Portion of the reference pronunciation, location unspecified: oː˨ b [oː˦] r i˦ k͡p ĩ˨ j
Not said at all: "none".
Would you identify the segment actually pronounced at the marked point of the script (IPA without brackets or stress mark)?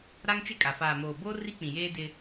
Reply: oː˦